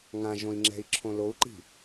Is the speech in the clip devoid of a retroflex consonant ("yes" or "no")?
yes